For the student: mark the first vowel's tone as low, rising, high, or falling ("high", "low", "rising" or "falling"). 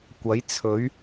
rising